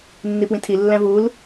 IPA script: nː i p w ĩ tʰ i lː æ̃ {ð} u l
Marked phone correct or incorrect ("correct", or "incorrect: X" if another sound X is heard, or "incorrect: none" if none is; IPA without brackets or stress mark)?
incorrect: v